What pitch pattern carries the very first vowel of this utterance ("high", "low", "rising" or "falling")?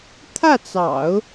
falling